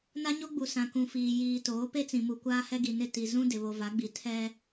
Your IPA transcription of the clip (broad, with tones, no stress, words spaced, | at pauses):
na˦ɲo˦ɡ͡bu˨ sã˨kũ˨fiː˨ jiː˨ toː˨˦pe˦t͡sĩ˨ mu˨kʷaː˦hɛ˦ɡi˨ nɪ˦˨ ti˨ zũ˦ dɪ˨βo˨va˨˦ɡ͡bi˨ tʰɛ˦